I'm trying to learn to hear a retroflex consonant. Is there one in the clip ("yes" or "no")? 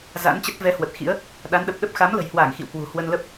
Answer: no